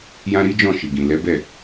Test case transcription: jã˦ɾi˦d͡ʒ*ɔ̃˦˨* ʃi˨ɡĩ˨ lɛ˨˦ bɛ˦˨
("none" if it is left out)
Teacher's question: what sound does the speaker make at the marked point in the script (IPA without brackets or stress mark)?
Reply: ɔ̃˦˨